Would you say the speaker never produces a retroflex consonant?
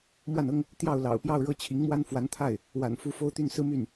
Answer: no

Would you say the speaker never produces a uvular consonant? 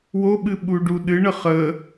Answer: no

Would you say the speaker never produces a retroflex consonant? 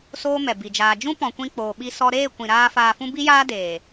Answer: yes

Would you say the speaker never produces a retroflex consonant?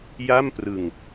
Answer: yes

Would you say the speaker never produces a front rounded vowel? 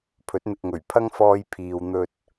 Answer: yes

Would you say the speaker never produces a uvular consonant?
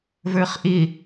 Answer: no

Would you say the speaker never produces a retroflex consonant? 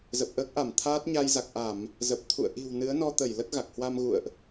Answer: yes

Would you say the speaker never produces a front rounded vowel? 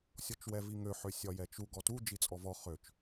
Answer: no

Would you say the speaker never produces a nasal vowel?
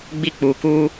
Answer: yes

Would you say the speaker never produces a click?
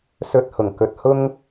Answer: yes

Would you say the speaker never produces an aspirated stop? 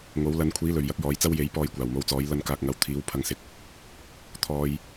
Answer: no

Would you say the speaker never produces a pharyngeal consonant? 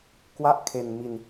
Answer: yes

